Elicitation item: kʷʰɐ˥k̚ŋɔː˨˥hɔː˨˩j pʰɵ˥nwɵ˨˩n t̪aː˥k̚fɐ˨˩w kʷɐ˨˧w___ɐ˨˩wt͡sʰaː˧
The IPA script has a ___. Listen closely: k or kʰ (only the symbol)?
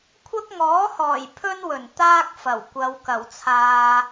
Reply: k